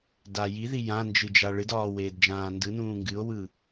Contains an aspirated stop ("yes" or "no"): no